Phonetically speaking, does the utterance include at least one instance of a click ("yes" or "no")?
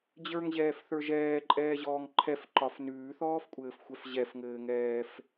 yes